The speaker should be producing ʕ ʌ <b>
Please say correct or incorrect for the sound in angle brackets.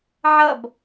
correct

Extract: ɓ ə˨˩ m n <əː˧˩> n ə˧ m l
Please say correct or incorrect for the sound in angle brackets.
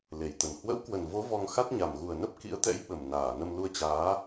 incorrect: aː˧˩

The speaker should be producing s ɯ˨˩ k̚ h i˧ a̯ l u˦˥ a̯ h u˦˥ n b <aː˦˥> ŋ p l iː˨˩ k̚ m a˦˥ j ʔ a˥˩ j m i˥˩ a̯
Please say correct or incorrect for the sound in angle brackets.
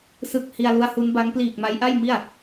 incorrect: a˦˥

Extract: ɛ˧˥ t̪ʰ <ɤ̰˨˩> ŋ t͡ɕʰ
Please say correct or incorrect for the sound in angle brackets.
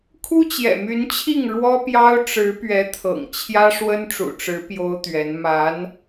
correct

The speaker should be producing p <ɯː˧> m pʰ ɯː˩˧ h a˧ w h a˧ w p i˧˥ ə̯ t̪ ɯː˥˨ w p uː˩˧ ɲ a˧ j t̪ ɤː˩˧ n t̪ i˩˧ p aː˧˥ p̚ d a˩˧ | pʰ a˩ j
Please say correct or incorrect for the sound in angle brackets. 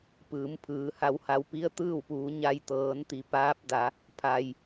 incorrect: ɯː˩˧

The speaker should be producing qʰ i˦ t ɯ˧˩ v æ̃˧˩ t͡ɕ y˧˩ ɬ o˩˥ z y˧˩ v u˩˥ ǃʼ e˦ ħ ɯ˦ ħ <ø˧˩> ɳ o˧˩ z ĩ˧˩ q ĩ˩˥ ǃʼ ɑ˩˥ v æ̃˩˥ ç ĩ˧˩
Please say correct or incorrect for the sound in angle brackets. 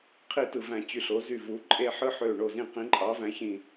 correct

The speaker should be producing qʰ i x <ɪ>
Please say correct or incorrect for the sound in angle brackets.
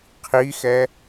incorrect: ɛ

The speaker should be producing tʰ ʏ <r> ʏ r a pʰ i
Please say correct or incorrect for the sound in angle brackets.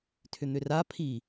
incorrect: n̪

